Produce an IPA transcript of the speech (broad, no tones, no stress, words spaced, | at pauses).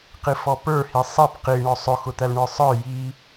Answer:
qifɔpə˞ hisˤip qiɳɔ sˤʊxʊ t̪ælɳə˞sˤə˞ ji